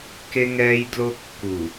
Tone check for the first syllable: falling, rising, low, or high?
high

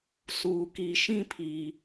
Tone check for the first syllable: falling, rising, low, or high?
low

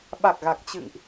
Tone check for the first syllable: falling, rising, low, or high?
low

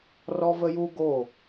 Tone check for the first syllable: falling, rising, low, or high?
high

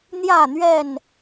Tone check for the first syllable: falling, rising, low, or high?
falling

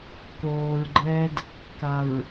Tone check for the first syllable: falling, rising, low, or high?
low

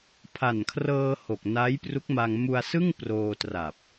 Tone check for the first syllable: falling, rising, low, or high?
low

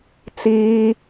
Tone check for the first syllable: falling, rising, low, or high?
low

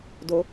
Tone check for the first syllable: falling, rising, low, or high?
high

